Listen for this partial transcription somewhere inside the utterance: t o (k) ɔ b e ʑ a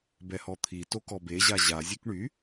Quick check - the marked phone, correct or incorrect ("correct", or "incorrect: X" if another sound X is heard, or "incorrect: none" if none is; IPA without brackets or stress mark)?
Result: correct